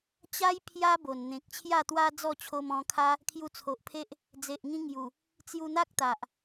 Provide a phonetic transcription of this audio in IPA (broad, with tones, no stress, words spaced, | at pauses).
t͡ɕa˦j pʰja˦bo˨˩n n̪ẽ˨k̚t͡ɕʰja˥˧t̪wa˦ d͡zɔ˥˧t͡ɕʰo˧mɔ̃˧kʰa˦ | kʰju˧t͡sʰo˨ʔpʰe˦ʔ | d͡ze˨ʔŋĩ˧ ŋju˨˩ | t͡sju˧n̪a˦k̚t̪a˨ʔ